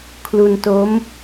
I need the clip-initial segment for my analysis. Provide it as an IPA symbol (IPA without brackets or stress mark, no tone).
kʰ